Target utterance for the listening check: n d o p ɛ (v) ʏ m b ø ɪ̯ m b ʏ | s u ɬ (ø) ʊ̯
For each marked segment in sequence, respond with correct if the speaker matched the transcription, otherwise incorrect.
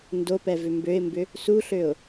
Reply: correct, correct

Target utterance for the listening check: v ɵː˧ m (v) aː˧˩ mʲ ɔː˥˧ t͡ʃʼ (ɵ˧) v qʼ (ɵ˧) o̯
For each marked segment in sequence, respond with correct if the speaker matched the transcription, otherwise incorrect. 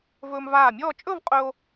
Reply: correct, incorrect, correct

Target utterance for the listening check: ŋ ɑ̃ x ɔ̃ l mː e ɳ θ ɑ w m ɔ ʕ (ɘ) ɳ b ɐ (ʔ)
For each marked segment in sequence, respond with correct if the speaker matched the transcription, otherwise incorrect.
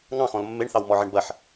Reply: correct, incorrect

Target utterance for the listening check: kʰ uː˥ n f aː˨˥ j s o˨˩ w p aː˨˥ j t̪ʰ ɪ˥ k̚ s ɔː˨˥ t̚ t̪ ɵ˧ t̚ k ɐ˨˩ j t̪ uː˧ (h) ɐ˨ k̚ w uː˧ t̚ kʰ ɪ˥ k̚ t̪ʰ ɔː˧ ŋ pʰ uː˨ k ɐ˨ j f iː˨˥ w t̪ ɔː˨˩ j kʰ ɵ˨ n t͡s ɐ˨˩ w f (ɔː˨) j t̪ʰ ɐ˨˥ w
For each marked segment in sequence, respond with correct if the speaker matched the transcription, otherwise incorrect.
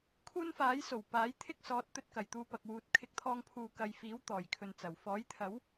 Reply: incorrect, incorrect

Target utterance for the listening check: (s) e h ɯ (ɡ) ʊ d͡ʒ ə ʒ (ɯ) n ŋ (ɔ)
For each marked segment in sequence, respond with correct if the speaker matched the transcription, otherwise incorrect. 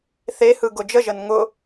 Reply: incorrect, correct, incorrect, incorrect

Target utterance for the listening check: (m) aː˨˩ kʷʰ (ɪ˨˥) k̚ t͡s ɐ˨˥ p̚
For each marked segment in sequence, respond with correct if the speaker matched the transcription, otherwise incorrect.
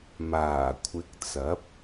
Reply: correct, correct

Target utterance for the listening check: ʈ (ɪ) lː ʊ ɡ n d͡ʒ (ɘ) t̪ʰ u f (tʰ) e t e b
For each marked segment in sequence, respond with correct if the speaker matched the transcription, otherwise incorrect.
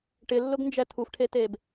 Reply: correct, incorrect, incorrect

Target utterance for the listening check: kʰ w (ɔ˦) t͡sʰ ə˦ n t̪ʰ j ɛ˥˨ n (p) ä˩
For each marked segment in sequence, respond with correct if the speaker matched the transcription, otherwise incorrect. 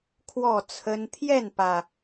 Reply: incorrect, correct

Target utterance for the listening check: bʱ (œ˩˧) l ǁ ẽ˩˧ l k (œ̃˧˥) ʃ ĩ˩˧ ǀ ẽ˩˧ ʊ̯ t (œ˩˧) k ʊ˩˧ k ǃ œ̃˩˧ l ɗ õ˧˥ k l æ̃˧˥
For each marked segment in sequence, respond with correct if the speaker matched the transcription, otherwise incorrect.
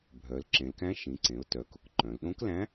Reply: correct, incorrect, correct

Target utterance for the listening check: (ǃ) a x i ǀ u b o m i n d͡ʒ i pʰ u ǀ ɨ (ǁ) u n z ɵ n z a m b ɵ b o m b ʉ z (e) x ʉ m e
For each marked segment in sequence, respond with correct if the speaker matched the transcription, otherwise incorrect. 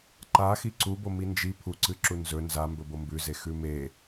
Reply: correct, correct, correct

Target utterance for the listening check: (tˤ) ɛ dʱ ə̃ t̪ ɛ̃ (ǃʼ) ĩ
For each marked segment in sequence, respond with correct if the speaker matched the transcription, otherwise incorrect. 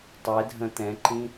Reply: correct, incorrect

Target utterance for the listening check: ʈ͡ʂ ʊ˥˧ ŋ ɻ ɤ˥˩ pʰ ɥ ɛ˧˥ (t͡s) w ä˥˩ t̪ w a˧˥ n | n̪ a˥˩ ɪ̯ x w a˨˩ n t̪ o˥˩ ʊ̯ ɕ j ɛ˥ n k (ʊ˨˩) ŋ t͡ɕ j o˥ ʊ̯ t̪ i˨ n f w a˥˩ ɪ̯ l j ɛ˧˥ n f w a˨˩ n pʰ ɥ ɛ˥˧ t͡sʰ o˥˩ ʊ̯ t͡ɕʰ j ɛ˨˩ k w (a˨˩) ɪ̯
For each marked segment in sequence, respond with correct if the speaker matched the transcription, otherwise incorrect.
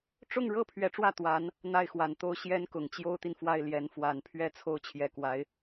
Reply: incorrect, correct, incorrect

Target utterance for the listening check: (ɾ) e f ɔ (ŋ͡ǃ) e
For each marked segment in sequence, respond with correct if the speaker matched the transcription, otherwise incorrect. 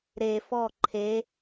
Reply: correct, incorrect

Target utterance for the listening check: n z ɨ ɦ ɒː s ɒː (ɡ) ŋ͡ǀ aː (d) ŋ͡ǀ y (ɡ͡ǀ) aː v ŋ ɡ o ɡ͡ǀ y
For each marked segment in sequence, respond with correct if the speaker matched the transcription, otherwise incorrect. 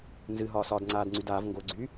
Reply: incorrect, correct, incorrect

